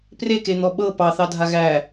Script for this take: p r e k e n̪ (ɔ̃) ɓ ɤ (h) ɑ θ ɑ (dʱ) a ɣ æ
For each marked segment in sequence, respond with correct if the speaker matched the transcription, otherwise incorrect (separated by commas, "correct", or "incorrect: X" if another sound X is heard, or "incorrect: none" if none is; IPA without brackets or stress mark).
incorrect: ɔ, incorrect: p, correct